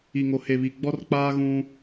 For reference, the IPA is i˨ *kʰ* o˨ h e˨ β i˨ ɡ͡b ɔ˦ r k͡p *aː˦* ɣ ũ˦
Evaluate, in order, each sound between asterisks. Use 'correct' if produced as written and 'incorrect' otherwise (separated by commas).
incorrect, correct